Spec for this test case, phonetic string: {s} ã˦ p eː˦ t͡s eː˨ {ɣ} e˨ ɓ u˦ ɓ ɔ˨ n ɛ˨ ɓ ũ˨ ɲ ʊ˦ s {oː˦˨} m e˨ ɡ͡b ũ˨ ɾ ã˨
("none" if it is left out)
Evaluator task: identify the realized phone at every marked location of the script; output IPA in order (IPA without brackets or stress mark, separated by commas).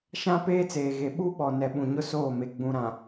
ʃ, ɣ, oː˦˨